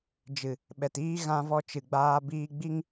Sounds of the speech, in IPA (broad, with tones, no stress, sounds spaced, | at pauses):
d͡ʒ ɨ˨ | ɓ ɛ˨ t iː˦ ɣ ã˧ v ɔ˧ t͡ʃ ɨ˨ ɡ͡b aː˧ b iː˧ ɡ͡b i˦ ŋ